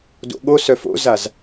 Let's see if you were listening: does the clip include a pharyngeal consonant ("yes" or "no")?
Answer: no